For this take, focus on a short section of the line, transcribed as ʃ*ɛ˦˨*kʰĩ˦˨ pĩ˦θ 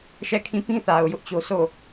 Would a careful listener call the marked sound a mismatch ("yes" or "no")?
no